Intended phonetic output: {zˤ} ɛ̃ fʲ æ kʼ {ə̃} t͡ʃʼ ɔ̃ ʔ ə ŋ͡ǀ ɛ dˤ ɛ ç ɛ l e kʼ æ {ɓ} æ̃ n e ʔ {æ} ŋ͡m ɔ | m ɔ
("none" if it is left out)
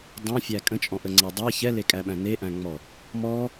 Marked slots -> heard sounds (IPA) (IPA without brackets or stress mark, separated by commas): dˤ, ə̃, ɓ, æ̃